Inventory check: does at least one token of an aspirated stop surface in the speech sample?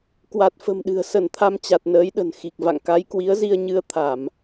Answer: yes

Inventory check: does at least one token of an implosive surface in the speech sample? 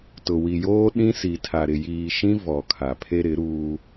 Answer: yes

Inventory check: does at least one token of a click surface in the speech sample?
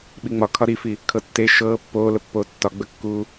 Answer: no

